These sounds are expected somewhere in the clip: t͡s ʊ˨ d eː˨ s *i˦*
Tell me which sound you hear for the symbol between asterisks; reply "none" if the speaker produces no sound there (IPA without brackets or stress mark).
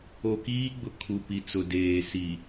i˨